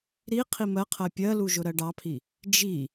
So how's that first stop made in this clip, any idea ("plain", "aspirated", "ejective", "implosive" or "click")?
aspirated